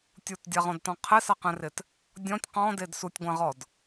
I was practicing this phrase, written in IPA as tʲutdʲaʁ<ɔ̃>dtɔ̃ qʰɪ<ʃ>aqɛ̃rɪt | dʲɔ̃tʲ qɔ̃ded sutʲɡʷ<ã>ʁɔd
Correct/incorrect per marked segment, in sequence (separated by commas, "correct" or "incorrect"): correct, incorrect, correct